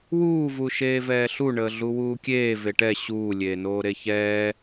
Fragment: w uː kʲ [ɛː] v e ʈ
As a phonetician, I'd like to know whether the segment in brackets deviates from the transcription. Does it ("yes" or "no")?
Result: yes